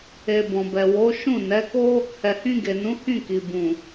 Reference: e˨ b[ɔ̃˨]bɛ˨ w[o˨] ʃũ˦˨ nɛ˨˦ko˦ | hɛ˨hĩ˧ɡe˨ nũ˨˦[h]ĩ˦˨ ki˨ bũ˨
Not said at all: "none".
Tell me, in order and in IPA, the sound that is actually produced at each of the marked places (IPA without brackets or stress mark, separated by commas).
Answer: ɔ̃˨, o˨˦, h